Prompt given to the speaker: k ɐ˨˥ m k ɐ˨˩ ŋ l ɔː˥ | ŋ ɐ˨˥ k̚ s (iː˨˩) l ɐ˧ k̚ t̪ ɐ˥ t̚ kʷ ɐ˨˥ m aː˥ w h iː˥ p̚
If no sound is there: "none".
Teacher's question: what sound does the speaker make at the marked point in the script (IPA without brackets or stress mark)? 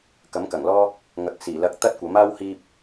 iː˨˩